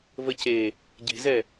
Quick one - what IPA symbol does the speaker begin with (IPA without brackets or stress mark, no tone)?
v